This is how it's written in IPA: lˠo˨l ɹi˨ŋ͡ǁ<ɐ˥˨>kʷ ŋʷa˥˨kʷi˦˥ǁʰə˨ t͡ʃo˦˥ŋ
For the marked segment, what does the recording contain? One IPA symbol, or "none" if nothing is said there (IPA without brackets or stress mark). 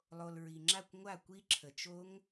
a˥˨